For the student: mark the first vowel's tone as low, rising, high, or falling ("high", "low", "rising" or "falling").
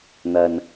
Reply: low